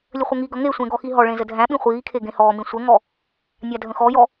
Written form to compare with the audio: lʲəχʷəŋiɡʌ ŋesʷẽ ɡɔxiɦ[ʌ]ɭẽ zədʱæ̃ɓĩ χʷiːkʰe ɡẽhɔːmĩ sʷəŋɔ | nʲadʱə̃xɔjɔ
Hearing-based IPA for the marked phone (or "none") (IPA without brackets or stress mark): ɔ